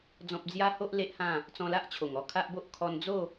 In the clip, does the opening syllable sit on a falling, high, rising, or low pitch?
high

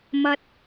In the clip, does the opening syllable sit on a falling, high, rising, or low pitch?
high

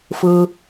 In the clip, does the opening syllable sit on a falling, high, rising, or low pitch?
low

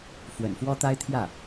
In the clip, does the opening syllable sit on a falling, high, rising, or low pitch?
low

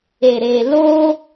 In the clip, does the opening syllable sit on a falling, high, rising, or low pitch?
low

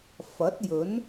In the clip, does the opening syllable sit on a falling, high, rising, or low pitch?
rising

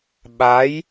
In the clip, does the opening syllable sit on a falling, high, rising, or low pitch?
rising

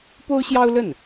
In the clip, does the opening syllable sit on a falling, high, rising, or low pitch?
high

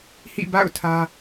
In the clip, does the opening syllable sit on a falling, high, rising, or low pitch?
falling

